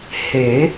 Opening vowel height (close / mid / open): mid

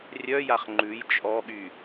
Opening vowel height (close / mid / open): mid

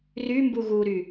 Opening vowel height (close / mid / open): close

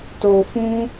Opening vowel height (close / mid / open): mid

